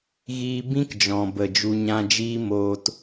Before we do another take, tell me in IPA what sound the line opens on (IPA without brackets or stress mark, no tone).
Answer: ɣ